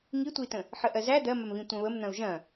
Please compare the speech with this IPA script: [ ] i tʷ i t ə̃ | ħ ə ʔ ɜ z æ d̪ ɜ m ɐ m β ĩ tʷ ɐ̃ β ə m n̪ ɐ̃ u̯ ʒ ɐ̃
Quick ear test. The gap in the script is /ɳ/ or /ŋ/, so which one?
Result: ŋ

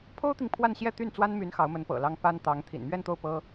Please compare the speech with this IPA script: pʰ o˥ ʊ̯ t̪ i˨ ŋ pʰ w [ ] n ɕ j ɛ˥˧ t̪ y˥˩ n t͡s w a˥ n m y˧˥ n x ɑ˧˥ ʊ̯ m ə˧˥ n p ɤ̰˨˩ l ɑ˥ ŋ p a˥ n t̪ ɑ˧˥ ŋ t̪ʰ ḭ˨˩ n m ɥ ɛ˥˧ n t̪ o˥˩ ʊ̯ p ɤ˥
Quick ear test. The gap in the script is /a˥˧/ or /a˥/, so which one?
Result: a˥˧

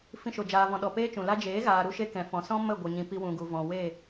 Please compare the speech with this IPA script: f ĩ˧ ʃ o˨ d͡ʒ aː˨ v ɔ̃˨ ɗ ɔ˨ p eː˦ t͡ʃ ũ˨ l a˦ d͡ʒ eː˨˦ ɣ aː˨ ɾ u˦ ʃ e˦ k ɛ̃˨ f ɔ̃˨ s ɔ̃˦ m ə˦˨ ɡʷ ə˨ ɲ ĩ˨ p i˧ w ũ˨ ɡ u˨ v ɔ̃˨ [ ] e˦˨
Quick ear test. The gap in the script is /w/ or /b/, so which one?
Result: w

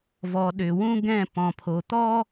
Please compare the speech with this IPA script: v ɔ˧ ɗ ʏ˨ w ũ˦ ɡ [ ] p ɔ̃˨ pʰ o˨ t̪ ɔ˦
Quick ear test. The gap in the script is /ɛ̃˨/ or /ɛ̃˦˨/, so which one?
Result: ɛ̃˦˨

